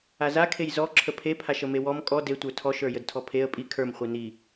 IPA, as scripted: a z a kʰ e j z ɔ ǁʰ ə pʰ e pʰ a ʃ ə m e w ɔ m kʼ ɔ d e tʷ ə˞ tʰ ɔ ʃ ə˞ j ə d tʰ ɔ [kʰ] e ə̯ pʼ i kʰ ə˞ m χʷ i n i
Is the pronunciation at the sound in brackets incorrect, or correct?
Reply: incorrect